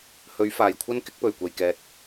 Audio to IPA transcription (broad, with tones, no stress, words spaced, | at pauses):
hɵ˨˥ɥfaː˨˩jkʷʰɐ˥n kɪ˥k̚pɵ˨˩ɥkʷɐ˨jkɛː˨t̚